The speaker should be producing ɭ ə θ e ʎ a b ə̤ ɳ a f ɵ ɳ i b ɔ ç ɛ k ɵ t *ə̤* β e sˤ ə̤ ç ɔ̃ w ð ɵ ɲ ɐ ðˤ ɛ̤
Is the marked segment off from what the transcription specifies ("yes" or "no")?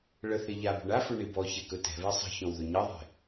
yes